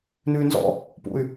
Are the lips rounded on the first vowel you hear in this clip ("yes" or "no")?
yes